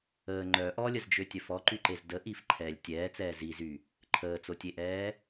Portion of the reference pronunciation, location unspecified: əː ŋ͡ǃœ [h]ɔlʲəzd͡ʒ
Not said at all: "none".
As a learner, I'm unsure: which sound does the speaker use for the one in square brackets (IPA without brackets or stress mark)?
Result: ʔ